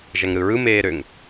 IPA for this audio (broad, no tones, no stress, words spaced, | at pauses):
ʒæŋɾɯɹɯ meːɾøŋ